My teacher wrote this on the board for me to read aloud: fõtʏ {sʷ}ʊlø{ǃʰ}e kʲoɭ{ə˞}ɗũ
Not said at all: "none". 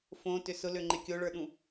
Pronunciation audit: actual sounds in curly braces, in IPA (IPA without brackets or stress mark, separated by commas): s, ŋ͡ǃ, ə˞